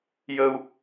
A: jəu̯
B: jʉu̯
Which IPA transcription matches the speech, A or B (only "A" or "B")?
A